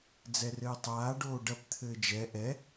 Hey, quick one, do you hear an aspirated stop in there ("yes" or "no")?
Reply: yes